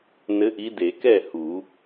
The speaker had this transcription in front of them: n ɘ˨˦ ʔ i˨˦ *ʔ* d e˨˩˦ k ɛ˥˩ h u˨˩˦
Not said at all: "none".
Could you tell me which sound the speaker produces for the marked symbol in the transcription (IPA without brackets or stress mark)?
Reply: none